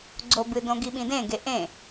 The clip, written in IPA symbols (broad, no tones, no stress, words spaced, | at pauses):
ɡ͡ǀobɨdõ ɡiɓĩdẽɡe ʔẽ